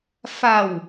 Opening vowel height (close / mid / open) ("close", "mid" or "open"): open